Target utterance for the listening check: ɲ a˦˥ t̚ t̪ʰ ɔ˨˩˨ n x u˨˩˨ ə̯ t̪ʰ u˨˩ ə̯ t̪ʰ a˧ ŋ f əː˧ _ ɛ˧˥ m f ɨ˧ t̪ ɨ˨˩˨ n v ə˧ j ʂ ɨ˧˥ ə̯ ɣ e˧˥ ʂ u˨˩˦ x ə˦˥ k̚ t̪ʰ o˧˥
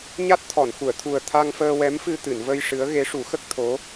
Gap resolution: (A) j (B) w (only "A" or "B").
B